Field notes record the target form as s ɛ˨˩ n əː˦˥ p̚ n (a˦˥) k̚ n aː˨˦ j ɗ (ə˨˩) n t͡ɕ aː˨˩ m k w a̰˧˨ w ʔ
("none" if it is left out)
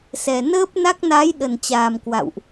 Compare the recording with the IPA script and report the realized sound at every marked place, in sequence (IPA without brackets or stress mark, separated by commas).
a˦˥, ə˨˩